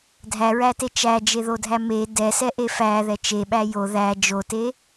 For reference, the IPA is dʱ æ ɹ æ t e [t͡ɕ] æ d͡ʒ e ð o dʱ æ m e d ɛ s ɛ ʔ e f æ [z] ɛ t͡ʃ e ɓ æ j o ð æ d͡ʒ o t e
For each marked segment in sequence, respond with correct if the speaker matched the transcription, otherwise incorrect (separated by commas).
incorrect, incorrect